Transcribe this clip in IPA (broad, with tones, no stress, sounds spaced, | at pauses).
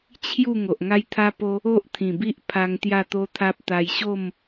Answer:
t͡ɕʰ j u˥˧ ŋ o˨ ʔ ŋ a˦ j t̪ʰ a˦ p o˦ | o˦ ʔ t̪ʰ ĩ˨˩ b i˦ ʔ pʰ a˧ ŋ t̪ j a˥˧ t̪ o˦ t̪ʰ a˦ p̚ t̪ a˧ j ɕ o˥˧ m